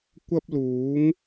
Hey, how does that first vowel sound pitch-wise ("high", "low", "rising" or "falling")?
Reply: high